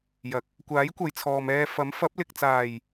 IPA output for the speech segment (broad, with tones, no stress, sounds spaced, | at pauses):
j ɐ˨˥ k̚ | kʷ aː˨˥ j kʷ ɐ˨ j t͡sʰ ɔː˨ m ɛː˧ f ɐ˨˥ m f ɐ˨˥ p̚ l ɪ˨ k̚ t͡s aː˨˩ j